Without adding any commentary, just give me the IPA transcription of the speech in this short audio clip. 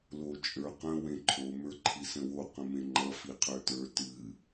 lot͡ʃʼə˞qə̃ wẽǃʰo mə˞ǃʰisə̃wo qə̃mẽŋ͡ǃʌ fiqʰə˞tə˞ tɨ

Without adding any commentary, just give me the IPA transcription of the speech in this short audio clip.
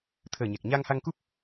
t̪ʰəː˨˩ɲɛ˨˩k̚ ɲa˧ŋha˧ŋku˦˥p̚

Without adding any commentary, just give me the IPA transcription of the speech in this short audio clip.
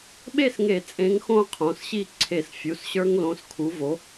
ɓe˥˩sŋe˧˩˧ t͡sʼẽ˨˥ŋxõ˦ qʰõ˩˧˩sɕi˥˩ ǀʰe˧˩˧sfʲu˩˧˩sɕə˞˦ŋ lõ˨˥skʰu˨˥vo˨˥

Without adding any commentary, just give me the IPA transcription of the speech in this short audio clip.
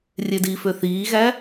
rʲedifø θiːɣæ

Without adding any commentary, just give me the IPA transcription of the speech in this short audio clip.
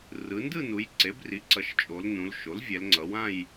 rɯ˩˧ndɯ˥˧nu˩˧j ǀe˩˥bri˩˥ǀʌ˩˧ʃ t͡ʃʼo˩˧lnũ˩˧l ʃo˩˥lvʲɛ˩˧lŋ͡ǀʌ˩˧wã˥˧j

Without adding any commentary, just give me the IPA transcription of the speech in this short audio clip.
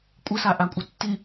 kʷʼɪsaʔakʷʼɪ tːi

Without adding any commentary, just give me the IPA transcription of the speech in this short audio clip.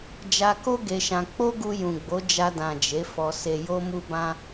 d͡ʒa˧ko˦ ɡe˧ʃã˧ k͡po˦ɡu˧ jũ˨ɡ͡bo˨˦ d͡ʒa˧dã˨ d͡ʒe˨˦fɔ˧ se˧jo˦mu˦bã˦

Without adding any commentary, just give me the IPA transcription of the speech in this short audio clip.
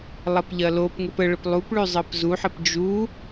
lˠɐpʎɐlopŋɘp əɭəp lˠup ɭʉzˤɘpzuħəp d͡ʒu

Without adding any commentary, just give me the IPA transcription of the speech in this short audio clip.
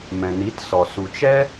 mɛ̃˨ni˨˦tsɔ˨ su˨t͡ʃɛ˦

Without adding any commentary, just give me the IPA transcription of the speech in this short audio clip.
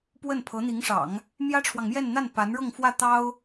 pwə˥˩npʰɤ˧˥n̪i˧˥ŋʂɑ̰˨˩˦ŋ | mjä˥ʈ͡ʂʰwɑ˨ŋmjɛ˥˧nn̪a˥˩n pa˧˥nɻɤ˥˧ŋfwä˥˩ t̪ɑ˥ʊ̯

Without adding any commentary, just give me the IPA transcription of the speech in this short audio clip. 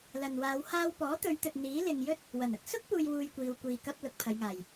lɐ˨nwaː˨˧w haː˧wpɔː˨˥t̪ɵ˨˧ɥt̪ɵ˨t̚ n̪iː˨˥lɪ˨ŋjɵ˥t̚ | wɐ˨˩nɐ˨k̚ sʊ˥k̚puː˨jwuː˨j kʷiː˧wkʷiː˧kɐ˥p̚ lʊ˨k̚pʰɐ˨˧jŋaː˨˩j

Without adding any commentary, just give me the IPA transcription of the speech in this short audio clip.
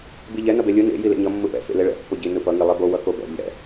biʎɛ nʌbelʲɯ nḛ jilḛɲʌ mːɯpɛ̰ fḛleɭɛ̰ pːoɟi nɯpʌ ŋilˠebo wʌkobɛ̰ ʎɛ̰

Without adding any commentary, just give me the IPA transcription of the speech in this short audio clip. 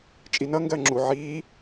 t͡ʃʼinʌŋɡɜ ŋ͡ǁu ʕiː

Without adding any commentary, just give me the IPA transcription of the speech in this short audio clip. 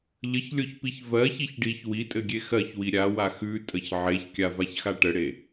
ʎəçlʲoçpiç vɜçiç ɖiç witʼɘɡʲe xɜçwi ɾʲawa xʉtʼəç ʕeçkʲavaçxa ʈəɽe

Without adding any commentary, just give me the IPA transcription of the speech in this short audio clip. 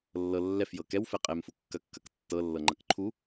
lːɤ lːɛfjɤ kɛwfɛ qʼɛmfu kːɐkːɐk tːɤlːɤŋ͡ǃɐk ǃʰu

